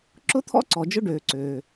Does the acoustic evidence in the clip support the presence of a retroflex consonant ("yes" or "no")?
yes